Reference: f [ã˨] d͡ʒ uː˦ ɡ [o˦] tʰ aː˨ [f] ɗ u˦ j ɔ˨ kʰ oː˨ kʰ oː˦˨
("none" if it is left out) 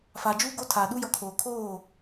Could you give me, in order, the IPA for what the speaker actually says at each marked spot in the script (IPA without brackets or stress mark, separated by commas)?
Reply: a˨, o˦, none